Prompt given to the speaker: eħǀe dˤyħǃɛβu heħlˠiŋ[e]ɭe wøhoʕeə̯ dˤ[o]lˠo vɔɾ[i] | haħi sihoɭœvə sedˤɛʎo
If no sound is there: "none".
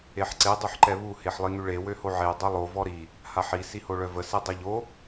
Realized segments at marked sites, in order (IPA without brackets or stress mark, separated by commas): y, o, i